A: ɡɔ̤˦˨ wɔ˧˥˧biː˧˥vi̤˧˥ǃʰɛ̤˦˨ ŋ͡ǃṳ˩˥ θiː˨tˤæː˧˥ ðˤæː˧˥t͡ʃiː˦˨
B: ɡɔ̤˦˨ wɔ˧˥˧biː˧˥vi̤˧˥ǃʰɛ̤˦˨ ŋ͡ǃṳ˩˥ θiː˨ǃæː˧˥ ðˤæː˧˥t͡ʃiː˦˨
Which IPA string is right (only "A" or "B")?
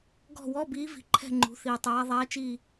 A